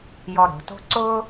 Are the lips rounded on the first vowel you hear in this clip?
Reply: yes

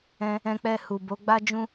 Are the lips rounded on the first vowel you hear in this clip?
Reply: no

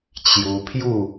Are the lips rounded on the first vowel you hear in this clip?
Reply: yes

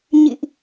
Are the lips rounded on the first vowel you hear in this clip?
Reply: no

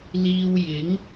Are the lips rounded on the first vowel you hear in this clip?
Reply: no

